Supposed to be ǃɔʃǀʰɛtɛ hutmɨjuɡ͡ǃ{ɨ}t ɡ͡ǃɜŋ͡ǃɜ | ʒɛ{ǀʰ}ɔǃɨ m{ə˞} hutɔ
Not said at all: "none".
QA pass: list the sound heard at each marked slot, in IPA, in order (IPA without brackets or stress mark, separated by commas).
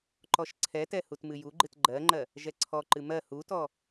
ɨ, ǀʰ, ɜ